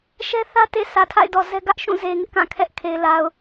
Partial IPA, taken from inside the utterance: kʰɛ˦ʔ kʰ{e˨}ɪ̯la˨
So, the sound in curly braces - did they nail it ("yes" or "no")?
yes